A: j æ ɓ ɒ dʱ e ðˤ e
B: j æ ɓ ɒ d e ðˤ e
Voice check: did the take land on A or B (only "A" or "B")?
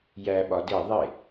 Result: B